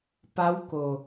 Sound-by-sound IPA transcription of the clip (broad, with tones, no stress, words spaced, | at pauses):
pa˧˥wko˩